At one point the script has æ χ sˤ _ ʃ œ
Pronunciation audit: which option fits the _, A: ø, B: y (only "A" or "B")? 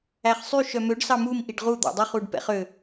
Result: B